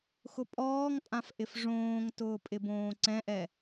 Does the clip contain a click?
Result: yes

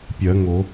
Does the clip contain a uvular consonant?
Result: no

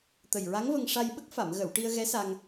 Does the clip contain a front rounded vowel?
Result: no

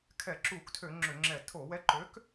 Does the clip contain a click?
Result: yes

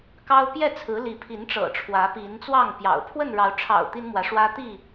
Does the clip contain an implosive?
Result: no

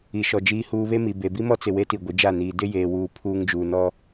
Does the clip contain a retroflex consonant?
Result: no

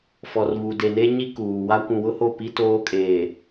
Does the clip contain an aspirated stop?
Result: no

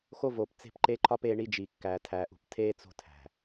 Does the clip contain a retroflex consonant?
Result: yes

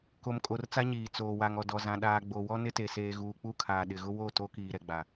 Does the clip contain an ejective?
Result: yes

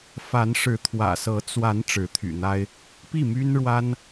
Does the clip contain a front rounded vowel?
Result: yes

